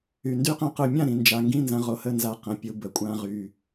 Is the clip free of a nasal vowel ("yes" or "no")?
no